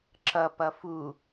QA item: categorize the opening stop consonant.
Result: click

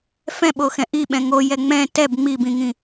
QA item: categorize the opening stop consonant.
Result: implosive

